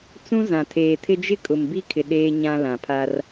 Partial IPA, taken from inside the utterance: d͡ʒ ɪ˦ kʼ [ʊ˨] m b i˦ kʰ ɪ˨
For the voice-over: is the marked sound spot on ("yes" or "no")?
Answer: yes